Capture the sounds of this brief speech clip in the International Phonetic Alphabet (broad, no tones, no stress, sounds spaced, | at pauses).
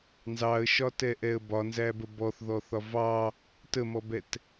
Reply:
n z ɑ ə̯ ʃ ɒ t ɛ ʔ ɛ ə̯ b ɒ n z æ b ə b ɔ θ ð ɔ θ ɒ v ɑ | t ə m ɔ b ɛ t